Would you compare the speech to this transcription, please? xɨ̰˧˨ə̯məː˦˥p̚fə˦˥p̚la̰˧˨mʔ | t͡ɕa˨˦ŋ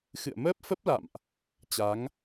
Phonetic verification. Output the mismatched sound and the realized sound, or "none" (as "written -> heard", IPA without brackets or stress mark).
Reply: none